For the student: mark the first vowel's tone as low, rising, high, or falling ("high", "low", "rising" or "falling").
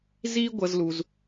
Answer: high